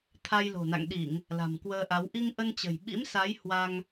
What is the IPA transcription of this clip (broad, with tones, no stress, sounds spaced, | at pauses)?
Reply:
t̪ʰ a˧ j l o̤˨˩ n a̰˧˨ ŋ ɗ i˧˩˨ ŋ | l a̤˨˩ m k w əː˧ ʔ a˨˦ w ʔ i˧ ŋ ʔ ə˧ n t͡ɕ ə̤˨˩ j ɓ ḭ˧˥ m s a˨˦ j h w a˧ ŋ